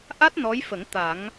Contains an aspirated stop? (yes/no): no